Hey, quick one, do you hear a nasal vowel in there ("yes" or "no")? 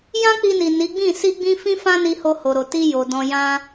yes